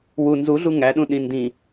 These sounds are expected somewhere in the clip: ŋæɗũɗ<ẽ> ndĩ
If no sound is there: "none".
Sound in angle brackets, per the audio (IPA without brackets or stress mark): ĩ